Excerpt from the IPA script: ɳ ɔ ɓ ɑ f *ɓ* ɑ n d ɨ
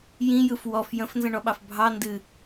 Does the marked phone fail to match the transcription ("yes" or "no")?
yes